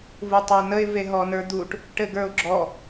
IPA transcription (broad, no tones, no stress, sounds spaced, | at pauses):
v u tˤ ɛ n ə ɪ̯ v e ɦ ɔ n ə˞ d̪ u ʈ | ʈ ɘ ɡ ə˞ ʊ̯ ɡ͡ǁ ɔ